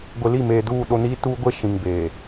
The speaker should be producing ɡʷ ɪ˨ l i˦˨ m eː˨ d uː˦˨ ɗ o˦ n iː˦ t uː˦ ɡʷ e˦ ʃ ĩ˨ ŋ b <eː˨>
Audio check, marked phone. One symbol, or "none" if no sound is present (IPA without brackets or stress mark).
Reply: eː˨